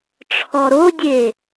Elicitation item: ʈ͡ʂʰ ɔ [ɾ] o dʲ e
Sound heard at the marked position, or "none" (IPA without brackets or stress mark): ɾ